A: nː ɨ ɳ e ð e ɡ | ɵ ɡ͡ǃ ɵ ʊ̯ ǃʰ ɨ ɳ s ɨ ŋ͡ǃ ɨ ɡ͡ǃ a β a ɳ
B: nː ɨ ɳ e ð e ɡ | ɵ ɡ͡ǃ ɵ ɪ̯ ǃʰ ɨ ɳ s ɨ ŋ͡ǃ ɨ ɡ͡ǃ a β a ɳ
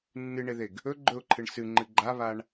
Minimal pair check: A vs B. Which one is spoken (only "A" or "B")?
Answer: A